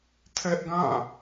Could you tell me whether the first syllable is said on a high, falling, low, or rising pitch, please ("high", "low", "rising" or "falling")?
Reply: high